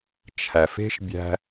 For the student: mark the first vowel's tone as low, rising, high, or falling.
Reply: low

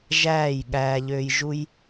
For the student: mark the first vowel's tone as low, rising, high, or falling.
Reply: falling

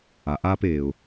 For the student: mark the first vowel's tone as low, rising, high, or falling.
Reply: low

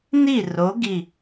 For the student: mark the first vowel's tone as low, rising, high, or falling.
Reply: falling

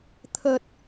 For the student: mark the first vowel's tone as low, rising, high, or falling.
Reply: low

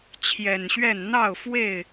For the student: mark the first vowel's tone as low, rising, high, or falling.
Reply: low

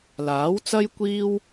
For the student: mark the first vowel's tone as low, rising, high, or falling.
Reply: rising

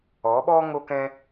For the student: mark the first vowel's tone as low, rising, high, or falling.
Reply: rising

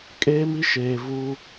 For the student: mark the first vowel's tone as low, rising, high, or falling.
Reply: high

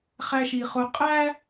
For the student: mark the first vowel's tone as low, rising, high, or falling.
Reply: low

